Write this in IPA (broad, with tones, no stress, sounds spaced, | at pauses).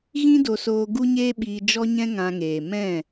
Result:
ɣ ĩ˦ d o˧ s oː˧ ɡ u˦ ɲ eː˦ ɓ iː˧ d͡ʒ ɔ˦ ɲ ɛ̃˦ ŋ ã˧ ŋ eː˨ m ɛ̃˦˨